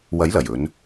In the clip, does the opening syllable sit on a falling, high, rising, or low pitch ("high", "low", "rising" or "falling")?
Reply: rising